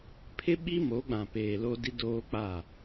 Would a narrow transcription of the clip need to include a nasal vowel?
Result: yes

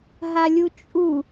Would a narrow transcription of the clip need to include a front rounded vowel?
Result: no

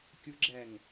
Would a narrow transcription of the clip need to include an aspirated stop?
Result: no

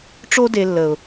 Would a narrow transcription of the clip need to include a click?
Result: no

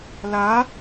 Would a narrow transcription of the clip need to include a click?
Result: no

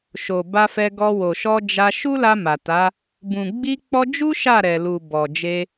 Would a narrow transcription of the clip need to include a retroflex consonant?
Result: no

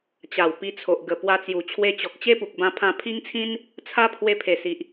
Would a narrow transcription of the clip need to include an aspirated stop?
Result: yes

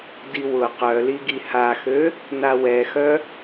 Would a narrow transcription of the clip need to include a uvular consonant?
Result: yes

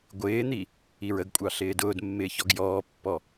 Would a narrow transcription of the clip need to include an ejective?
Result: yes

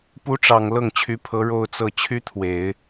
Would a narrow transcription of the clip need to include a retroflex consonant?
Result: yes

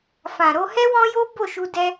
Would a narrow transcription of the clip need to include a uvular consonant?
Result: no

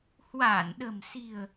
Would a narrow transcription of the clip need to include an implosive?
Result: yes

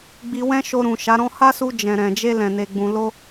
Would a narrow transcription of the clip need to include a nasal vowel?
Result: yes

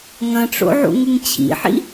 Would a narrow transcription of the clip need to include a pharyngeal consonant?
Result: yes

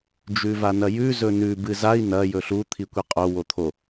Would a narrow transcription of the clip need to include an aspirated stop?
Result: yes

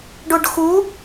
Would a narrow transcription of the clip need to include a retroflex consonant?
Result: yes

